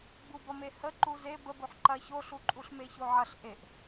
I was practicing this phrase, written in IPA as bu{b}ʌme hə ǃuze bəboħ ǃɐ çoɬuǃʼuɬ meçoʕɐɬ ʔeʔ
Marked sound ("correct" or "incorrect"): correct